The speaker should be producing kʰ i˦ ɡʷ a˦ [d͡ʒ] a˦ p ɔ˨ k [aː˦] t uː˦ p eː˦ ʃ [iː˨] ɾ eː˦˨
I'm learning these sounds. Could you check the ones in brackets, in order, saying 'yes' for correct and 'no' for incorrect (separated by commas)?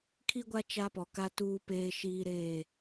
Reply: no, no, no